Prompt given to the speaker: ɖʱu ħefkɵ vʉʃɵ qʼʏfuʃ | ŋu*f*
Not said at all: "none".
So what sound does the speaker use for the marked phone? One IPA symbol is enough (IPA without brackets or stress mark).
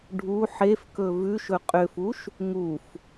f